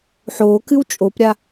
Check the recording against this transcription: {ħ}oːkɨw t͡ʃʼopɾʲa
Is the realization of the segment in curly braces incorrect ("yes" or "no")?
no